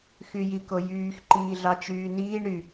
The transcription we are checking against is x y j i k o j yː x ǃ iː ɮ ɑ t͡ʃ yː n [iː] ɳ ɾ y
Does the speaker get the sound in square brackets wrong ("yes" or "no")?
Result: no